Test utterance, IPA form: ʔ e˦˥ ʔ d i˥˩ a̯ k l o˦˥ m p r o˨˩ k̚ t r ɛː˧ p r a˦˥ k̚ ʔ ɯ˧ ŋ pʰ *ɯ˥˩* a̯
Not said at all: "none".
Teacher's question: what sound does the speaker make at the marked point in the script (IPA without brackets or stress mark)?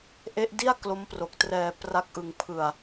ɯ˧